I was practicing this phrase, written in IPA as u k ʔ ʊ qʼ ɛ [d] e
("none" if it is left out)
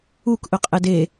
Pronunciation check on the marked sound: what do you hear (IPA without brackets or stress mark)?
d